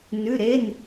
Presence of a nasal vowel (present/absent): absent